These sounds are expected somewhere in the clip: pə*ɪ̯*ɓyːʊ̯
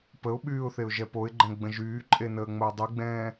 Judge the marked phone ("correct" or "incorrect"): incorrect